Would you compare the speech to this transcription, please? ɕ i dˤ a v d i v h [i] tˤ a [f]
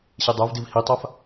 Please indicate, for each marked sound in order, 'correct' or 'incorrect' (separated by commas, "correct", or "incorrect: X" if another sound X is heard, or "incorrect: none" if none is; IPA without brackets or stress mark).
correct, correct